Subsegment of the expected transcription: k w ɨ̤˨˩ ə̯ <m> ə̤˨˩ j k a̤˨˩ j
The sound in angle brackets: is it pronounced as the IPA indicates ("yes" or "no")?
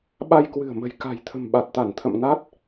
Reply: yes